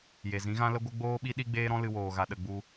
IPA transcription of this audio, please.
j e˨ z ĩ˨˦ ɣ ã˦ l ə˦ ɡʷ ə˦ ɡ͡b oː˦ ɓ i˦ ɗ i˦ ɡ͡b eː˦ ɾ ɔ̃˦ l ɨ˧ w oː˨ ɣ a˨ ɗ ə˨ ɡ͡b u˧

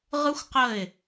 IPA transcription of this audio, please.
ʁ ɯ˦ xʷ q ə˦˨ ɪ̯

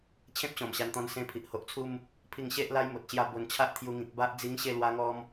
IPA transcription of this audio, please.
t͡ɕʰ ẽ˦ p̚ ɕ ɔ̃˨˩ m ɕ a˧ n t̪ ɔ̃˧ n s ẽ˧ pʰ i˨ ʔ h o˨ ʔ t͡sʰ u˦ m | pʰ i˥˧ ŋ ɕ e˦ ʔ l a˦ j m o˨ t̚ ɕ j a˥˧ b o˧ n t͡ɕʰ a˦ ʔ t̪ʰ j u˧ ŋ ĩ˨ k̚ b a˦ ʔ d͡z i˦ ŋ ɕ e˥˧ l w a˦ ŋ ɔ˦ m

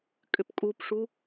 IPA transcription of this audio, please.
kʼ ʏ p kʼ u p ʂ u

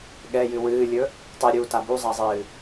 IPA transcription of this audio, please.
ɠ ɛ j ɨ w ɨː lʲ ɵ | tˤ ɨ ɾʲ uː t a b u zˤ a zˤ ɨː

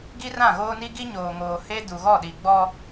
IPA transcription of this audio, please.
ɡ i˦ r ã˦˨ ɣ oː˦ n i˦ ɡ i˦ ɲ oː˨ ŋ oː˨ h e˦ d u˨ ɣ ɔ˦˨ ɗ i˨ ɡ͡b ɔ˦

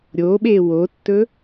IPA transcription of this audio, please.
ɾʲ o ɓ e w o tː ɵ

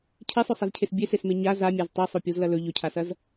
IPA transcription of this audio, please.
cʰ e sˤ ɵ sˤ ɐ z cʰ e s bʲ e s e s m e ɲ a z a mʲ a z tˤ i sˤ o pʲ o z l ɐ l ɵ ʎ ɵ cʰ a s ɐ z

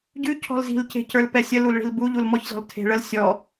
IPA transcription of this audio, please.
ɟ ʉ cʰ ɔ̤ l z i̤ l c e̤ c ə˞ l p ɛ sʲ ə l u l ɭ i̤ l b u ʎ u l m ɔ ç z ɔ̤ l tʰ e̤ ɭ ə l sʲ ɔ

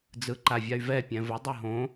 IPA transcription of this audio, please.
d͡z ɯ ǃ a vʲ a y̯ v ɛ pʲ ɛ̃ v ʊ dˤ ɯ ɦ õ

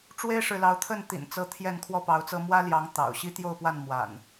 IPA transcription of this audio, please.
ʈ͡ʂ w e˦ ɪ̯ ʂ ɻ̩˨ l ɑ˨˦ ʊ̯ t̪ʰ ə˥˨ n t̪ ḭ˨˩ n t͡s ɤ˨˦ t̪ʰ j ɛ˥˨ n kʰ w ɔ˥˨ p ɑ˨˦ ʊ̯ t͡s ɤ˦ m w ä˦ l j ɑ˨˦ ŋ t̪ ɑ̰˨˩ ʊ̯ ɕ i˦ t̪ j o˥˨ ʊ̯ p w a˥˨ n m w a̰˨˩ n

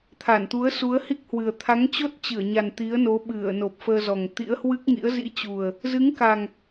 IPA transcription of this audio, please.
t̪ʰ a˧˩ n t̪ u˨˦ ə̯ s u˨˦ ə̯ h i˦˥ k̚ h w ɨ˨˩ ə̯ t̪ʰ a˨˦ ŋ t͡ɕ o˦˥ t̚ t͡ɕ ɨ˧˩ ə̯ ɲ a˨˩ n t̪ i˨˦ ə̯ n o˨˦ ɓ ɨ˧˩ ə̯ n o˨˩ p̚ f əː˧ z ɔ˨˩ ŋ t̪ ḭ˧˥ ə̯ h w ɨ˦˥ k̚ ŋ ḭ˧˥ ə̯ z ḭ˧˥ t͡ɕ u˨˩ ə̯ | z ɨ˨˦ ŋ k a˨˩ ŋ

